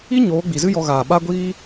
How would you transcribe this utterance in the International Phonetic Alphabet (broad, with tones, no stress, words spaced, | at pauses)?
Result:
i˦ ɲoː˨˦ɡ͡bi˨zɨ˦ jɔ˧ɣaː˨ ɓa˦ɡʷiː˦